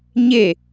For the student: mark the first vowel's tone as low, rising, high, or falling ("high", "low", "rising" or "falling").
falling